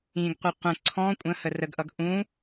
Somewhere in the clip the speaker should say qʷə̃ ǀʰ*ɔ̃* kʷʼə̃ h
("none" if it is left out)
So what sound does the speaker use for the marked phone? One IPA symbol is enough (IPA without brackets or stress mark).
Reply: ɔ̃